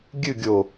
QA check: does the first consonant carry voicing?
yes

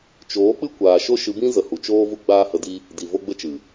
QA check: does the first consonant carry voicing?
no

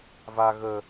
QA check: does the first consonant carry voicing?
yes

